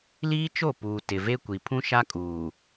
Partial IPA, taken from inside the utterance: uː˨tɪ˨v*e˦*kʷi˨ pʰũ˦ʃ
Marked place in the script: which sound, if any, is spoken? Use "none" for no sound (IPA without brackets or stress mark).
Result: e˦